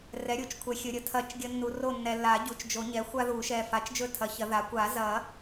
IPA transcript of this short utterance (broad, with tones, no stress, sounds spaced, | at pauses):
r ɛ˩˥ ɾʲ u˩˥ t͡ʃ kʷʰ ɛ˨ xʲ ɵ˨ ɾʲ ə˩˥ tʰ ɐ˨˩˦ t͡ʃ ɡʲ ə˨ nː u˨ r o˦˨ nː ɛ˨ lː a˨˩˦ ɟ u˩˥ t͡ʃ d͡ʒ o˨˩˦ ɲ ɛ˩˥ xʷ a˦ ð u˨˩˦ ʃ ɛ˨ f a˩˥ t͡ʃ d͡ʒ ɵ˦˨ tʰ ɐ˩˥ ç ɐ˨˩˦ ð a˩˥ kʷ a˨˩˦ z ɐ˨˩˦